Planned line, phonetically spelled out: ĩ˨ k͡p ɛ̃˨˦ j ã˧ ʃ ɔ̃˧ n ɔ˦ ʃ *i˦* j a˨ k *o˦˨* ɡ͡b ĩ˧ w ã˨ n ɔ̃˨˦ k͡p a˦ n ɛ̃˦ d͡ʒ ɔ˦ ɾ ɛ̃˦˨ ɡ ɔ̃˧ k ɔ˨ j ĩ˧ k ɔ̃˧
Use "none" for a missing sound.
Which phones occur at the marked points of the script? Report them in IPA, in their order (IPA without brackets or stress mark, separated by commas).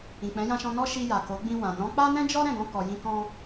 i˧, o˨˦